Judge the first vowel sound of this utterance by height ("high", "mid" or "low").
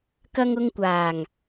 low